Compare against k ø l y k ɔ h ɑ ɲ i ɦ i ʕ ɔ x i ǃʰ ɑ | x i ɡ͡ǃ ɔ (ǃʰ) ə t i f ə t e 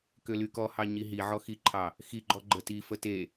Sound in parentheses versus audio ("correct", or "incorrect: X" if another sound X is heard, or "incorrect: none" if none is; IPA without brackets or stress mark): incorrect: ɡ͡ǃ